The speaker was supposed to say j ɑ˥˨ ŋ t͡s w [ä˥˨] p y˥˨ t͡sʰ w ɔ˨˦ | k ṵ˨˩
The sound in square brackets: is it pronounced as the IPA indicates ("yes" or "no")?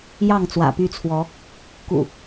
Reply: no